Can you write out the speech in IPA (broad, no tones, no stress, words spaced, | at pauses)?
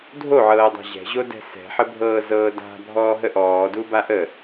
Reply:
dʱoʕɤːdˤa̤ ʑɛ̤ʑodɛ̤ sɛ̤ħəbʱɤː zɤːda̤ bʱɔːɦəʔɔːdu baʔə